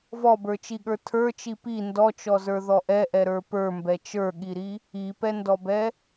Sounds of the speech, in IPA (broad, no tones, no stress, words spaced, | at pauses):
vɔbə˞t͡ʃiɠə˞ tʰə˞t͡ʃi pi ndɔt͡ʃɔzə˞ ðɔʔɛʔɛɾə˞ pə˞mbɛ t͡ʃə˞ɠiɾi | ipɛndɔbɛ